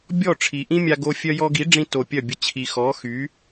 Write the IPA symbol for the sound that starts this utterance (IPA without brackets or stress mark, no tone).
bʲ